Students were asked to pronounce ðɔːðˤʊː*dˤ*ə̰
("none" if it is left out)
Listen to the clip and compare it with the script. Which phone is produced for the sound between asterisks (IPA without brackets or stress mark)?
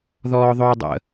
dˤ